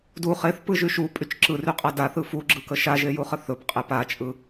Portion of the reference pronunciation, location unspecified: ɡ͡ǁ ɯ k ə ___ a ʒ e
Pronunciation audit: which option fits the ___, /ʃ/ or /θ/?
ʃ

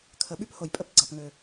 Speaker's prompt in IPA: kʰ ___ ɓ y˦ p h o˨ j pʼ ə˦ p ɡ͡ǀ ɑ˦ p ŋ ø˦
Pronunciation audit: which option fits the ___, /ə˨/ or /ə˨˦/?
ə˨˦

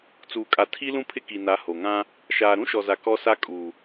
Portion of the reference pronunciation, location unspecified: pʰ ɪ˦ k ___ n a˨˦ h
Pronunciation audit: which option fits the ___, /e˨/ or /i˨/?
i˨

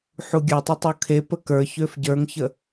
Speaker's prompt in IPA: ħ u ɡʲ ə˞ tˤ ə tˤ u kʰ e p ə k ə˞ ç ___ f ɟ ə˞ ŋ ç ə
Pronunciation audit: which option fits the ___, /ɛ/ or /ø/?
ø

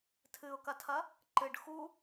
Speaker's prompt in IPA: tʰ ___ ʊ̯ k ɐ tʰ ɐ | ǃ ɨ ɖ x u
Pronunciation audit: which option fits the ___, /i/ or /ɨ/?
ɨ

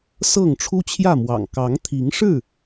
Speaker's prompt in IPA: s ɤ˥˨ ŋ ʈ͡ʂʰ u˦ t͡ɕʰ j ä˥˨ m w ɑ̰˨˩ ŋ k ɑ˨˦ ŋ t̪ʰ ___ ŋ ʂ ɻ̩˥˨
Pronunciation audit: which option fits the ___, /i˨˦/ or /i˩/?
i˨˦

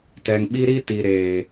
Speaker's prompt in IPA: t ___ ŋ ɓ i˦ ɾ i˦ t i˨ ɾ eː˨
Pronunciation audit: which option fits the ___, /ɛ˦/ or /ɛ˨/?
ɛ˨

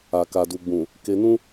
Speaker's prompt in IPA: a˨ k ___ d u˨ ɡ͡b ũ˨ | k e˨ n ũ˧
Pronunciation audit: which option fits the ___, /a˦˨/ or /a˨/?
a˨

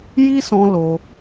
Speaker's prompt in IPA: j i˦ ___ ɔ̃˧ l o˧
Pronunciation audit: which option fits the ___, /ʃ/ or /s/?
s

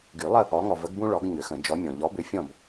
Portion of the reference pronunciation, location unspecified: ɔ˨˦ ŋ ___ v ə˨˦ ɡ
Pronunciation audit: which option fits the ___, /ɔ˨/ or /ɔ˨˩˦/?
ɔ˨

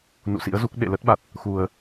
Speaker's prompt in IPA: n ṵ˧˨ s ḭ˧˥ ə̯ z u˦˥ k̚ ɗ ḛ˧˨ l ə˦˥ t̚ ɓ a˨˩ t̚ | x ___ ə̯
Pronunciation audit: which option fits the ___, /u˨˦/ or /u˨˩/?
u˨˩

